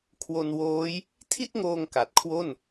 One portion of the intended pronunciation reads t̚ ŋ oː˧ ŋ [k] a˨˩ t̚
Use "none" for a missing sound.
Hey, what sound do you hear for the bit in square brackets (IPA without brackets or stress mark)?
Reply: k